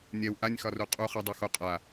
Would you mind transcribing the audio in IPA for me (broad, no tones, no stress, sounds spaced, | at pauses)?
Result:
nʲ ɛ w ʔ a nʲ x ɒ r u qʼ u χ ɛ dˤ y x o qʼ a